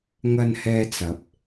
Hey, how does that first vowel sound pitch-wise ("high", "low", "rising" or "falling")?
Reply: low